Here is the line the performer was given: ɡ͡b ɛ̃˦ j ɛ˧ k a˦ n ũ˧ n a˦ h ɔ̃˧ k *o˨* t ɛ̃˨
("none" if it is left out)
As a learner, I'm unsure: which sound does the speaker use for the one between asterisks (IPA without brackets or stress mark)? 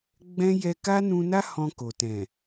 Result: o˨